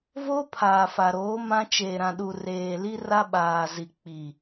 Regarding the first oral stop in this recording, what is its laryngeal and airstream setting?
aspirated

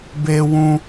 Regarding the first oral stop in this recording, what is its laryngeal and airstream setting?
plain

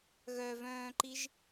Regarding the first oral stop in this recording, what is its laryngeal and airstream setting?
click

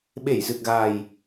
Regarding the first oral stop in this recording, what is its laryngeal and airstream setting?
implosive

